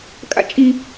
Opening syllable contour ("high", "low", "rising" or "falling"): high